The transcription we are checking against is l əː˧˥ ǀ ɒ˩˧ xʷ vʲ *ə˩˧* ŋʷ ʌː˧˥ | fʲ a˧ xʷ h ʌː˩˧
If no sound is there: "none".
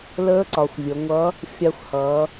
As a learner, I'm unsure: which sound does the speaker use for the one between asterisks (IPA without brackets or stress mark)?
ə˩˧